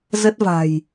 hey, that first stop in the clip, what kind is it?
plain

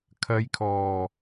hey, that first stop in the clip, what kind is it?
aspirated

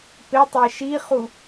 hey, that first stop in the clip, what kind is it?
plain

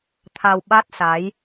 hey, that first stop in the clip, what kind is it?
aspirated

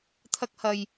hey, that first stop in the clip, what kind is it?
aspirated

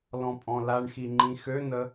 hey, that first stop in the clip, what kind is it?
ejective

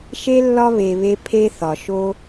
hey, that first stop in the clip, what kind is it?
aspirated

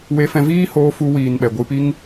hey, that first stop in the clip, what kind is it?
implosive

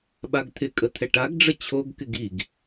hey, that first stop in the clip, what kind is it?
implosive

